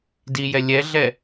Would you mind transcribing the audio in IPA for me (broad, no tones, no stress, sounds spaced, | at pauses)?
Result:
d i j ɛ lʲ ɛ ɮ ɛ